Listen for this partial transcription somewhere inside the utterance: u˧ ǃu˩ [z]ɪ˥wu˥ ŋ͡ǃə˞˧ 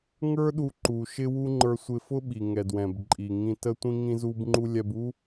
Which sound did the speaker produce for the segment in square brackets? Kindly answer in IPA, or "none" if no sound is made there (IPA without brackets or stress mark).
ʃ